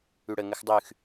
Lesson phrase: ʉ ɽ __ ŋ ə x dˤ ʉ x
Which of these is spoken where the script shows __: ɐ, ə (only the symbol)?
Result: ə